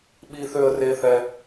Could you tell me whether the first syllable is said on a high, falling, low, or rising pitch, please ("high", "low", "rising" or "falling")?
high